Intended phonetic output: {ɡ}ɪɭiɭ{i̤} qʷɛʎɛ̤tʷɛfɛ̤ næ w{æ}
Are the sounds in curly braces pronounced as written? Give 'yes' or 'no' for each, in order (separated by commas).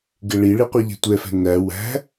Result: yes, no, no